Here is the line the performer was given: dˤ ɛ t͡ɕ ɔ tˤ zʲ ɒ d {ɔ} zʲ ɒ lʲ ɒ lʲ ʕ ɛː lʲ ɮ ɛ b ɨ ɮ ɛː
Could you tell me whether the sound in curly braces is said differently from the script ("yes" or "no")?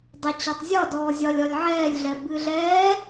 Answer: yes